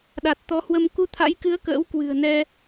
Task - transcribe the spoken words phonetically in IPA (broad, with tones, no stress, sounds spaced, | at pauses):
ɗ a˨˩ t̚ t̪ ɔ˨˦ h w ə˧ m k u˧ t̪ʰ a̰˧˥ j k ɨ˨˦ ə̯ k ə̰ː˧˥ w k w ɨ̤˨˩ ə̯ n ɛ˧